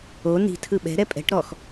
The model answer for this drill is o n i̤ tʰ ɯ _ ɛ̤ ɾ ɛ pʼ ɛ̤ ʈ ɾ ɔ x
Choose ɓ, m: ɓ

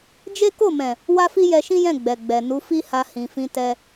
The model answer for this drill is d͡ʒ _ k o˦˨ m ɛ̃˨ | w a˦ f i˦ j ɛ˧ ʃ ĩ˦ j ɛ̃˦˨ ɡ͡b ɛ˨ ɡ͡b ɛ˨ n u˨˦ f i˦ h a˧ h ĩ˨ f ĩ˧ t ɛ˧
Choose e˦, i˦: e˦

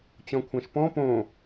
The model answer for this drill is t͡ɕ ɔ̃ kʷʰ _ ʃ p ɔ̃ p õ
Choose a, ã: ã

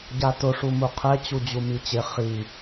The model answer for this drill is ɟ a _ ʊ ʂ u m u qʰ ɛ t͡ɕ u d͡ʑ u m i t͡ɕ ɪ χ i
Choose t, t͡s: t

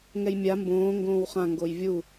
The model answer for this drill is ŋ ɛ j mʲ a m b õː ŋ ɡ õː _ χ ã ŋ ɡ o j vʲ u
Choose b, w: w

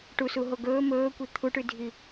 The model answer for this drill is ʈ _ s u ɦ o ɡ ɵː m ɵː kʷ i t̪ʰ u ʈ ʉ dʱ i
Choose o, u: u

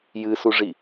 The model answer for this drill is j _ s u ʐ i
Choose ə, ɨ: ɨ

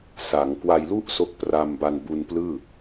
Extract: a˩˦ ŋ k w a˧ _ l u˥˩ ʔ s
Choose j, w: j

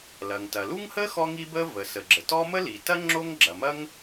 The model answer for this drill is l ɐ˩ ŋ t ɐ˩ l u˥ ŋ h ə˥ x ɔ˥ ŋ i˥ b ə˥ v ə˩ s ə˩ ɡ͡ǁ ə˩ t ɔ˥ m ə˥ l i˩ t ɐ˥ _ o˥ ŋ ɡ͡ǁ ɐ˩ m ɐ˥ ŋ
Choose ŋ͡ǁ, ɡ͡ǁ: ŋ͡ǁ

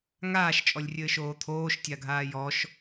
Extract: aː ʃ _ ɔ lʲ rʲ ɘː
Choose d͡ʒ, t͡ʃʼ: t͡ʃʼ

